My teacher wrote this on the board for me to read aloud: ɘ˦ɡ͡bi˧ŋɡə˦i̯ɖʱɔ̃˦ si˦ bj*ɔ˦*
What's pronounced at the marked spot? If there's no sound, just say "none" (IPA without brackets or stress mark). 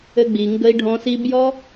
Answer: ɔ˦